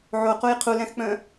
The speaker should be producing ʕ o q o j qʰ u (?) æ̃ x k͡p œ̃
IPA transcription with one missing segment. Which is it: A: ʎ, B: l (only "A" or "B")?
B